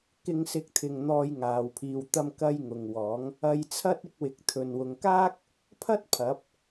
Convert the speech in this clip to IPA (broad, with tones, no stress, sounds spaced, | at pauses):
k ɪ˨˧ ŋ s ɪ˨˥ k̚ t̪ʰ ɪ˨ ŋ n̪ ɔː˧ j ŋ aː˨ w pʰ iː˨˧ w t̪ ɐ˧ m k ɐ˧ j ŋ ʊ˨ ŋ w ɔː˨˥ ŋ | ɐ˧ j t͡sʰ ɐ˥ t̚ ɪ˧ k̚ w ɪ˨ k̚ t̪ʰ ɵ˨ n w ʊ˨˧ ŋ k aː˥ k̚ | pʰ ɐ˥ t̚ pʰ ɐ˨˥ p̚